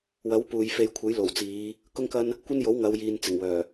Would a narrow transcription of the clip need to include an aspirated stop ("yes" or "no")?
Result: yes